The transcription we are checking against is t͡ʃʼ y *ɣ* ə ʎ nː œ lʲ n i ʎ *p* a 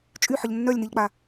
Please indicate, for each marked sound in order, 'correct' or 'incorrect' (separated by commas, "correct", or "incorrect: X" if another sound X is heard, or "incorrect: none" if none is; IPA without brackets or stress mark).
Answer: incorrect: ħ, incorrect: k͡p